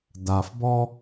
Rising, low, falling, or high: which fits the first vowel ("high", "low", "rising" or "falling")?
low